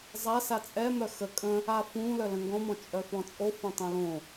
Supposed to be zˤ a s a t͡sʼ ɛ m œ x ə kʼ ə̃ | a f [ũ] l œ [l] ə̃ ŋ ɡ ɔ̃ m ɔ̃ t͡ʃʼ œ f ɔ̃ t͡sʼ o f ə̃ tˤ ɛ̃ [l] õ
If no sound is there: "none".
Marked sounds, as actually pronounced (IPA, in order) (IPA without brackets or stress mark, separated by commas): ũ, l, l